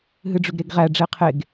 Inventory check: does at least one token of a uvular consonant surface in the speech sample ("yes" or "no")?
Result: yes